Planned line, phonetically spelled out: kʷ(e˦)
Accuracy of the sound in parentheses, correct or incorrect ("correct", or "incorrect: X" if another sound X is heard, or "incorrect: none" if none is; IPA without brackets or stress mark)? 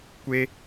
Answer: correct